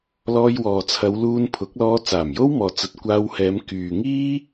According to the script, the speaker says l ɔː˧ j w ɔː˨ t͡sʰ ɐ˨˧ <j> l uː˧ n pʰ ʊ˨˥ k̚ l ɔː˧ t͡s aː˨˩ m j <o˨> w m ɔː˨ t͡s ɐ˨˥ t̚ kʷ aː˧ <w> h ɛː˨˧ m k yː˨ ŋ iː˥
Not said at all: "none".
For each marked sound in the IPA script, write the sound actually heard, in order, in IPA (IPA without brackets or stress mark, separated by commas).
w, o˥, w